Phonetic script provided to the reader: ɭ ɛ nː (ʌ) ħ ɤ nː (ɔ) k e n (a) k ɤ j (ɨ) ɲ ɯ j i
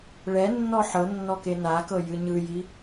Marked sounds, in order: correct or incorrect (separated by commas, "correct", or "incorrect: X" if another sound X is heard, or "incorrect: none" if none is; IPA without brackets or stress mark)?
incorrect: ɔ, correct, correct, correct